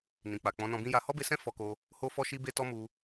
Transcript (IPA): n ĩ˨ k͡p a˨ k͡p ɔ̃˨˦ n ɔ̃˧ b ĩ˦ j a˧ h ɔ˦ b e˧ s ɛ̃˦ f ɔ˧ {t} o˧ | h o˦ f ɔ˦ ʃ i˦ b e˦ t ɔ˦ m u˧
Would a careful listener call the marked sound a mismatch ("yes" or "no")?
yes